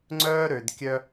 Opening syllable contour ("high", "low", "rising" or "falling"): high